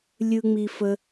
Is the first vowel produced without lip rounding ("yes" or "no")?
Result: yes